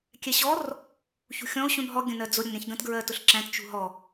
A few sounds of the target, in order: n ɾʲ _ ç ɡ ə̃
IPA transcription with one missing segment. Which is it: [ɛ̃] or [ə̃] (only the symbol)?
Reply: ɛ̃